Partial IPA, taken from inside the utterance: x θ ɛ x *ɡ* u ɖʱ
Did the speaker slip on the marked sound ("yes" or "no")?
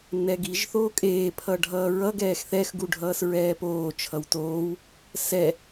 no